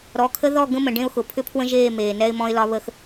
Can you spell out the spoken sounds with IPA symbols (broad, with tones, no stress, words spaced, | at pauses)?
ɾɔ˨˦kʰə˦ ðɔ˦˨ ɡə̃˦mə̃˨ ɖẽ˦ʊ̯xʊ˨ pʰʏ˦pʰwə̃˦ʒeː˦˨ meː˨nɛ˦ɪ̯mɔ̃˦ɪ̯lɒ˦ βə˦x